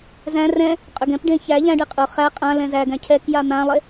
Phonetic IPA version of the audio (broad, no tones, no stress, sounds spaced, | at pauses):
z æ̃ r ɛ̃ | qʼ ø ɡ ɛ̃ p ɖ ẽ ç æ ʎ æ̃ ɖ e qʼ ʊ χ æ qʼ ã l ɛ̃ z æ ɡ æ̃ cʰ ɛ k j a n̪ ã lˠ e